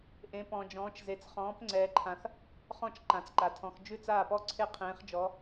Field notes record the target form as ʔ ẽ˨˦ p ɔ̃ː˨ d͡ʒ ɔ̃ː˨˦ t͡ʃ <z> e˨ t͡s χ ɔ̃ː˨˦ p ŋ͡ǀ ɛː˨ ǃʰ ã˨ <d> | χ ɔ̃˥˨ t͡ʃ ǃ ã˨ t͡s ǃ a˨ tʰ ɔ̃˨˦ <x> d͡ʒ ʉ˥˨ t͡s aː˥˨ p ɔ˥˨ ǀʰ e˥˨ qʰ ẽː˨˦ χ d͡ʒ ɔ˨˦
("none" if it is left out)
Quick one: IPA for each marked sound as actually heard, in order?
z, θ, x

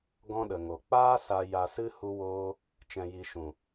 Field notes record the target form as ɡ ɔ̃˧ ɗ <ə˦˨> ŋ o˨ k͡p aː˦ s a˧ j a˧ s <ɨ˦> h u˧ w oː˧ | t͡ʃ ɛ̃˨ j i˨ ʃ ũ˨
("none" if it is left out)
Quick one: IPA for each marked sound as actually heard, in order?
ə˨, ɨ˦

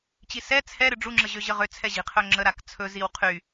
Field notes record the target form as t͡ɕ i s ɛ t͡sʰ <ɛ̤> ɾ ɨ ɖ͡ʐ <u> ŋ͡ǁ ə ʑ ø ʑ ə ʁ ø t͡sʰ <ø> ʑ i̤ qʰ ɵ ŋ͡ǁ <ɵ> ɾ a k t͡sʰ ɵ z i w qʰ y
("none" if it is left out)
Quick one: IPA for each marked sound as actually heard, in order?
ɛ, u, ɛ, ə

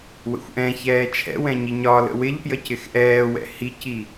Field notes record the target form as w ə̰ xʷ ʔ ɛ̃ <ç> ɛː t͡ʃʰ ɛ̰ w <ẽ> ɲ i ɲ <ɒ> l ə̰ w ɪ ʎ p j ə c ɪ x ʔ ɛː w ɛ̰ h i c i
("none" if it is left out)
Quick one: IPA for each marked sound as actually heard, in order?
ç, ɛ̃, ɒ

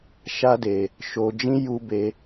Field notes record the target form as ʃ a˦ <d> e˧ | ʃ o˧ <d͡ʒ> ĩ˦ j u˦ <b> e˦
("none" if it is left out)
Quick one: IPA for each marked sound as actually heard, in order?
d, d͡ʒ, b

